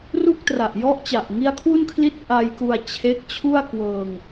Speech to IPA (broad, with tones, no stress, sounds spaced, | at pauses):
r u˥˩ k̚ t r a˨˩ ʔ j ɔ˦˥ ʔ t͡ɕ a˨˩ ʔ ŋ i˦˥ a̯ kʰ w u˥˩ n kʰ l i˥˩ t̚ ʔ a˧ j k u˧ a̯ t͡ɕʰ e˦˥ k̚ t͡ɕʰ u˥˩ a̯ k w ɤː˧ ŋ